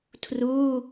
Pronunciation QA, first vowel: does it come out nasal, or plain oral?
oral